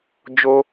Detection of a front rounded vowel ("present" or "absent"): absent